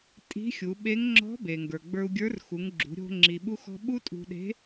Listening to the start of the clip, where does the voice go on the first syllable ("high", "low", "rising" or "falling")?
rising